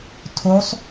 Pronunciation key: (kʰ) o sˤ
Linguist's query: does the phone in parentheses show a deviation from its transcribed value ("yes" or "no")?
yes